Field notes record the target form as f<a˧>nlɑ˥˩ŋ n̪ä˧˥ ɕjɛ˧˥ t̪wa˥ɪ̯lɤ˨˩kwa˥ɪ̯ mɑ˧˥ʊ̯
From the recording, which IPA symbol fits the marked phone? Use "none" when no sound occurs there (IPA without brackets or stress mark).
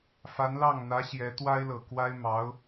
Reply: a˧˥